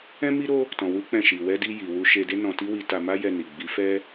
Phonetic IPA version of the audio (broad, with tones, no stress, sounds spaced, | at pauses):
ɛ̃˦ m i˦ ɾ o˦ | t ɔ̃˧ w u˦ k͡p ɛ̃˦˨ ʃ i˨ w ɛ˧ d i˧ j i˨ w u˧ ʃ e˧ d e˦ n ɔ̃˧ t i˦ w i˧ t a˧ m a˦ j ɛ˧ n i˨ ɡ͡b i˨˦ f ɛ˦